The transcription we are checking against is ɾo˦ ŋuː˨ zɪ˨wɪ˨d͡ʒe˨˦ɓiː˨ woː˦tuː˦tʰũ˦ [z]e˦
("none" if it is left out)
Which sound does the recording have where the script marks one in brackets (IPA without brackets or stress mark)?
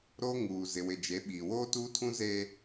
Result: z